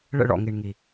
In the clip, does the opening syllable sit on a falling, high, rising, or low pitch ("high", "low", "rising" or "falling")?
falling